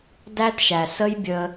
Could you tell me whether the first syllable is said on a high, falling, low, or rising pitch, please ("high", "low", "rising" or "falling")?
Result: high